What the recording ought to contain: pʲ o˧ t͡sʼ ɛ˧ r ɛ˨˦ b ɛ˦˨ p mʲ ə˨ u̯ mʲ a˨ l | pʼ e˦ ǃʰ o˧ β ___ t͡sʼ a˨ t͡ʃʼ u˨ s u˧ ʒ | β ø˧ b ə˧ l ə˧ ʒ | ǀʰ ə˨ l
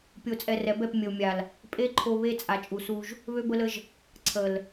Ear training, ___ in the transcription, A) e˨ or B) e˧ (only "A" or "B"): B